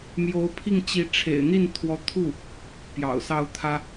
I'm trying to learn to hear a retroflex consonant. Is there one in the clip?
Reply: yes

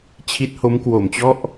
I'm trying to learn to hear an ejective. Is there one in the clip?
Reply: no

